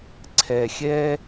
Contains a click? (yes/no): yes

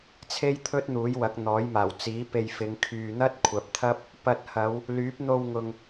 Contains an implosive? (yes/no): no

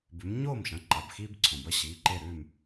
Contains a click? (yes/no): yes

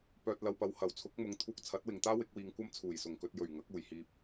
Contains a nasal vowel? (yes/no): no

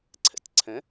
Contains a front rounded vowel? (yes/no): no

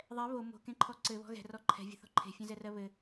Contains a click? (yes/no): yes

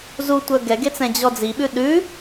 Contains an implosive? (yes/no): yes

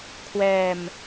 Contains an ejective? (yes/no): no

